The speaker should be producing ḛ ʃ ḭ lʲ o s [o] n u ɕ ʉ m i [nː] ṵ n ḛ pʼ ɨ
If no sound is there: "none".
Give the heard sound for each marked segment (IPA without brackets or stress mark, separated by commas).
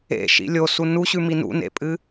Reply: u, n